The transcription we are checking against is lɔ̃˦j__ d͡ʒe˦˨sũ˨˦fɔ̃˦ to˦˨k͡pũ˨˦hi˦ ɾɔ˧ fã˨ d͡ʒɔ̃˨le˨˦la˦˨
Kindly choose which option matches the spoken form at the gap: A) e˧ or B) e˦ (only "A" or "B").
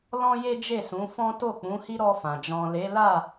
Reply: B